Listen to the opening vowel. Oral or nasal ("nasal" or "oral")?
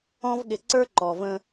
nasal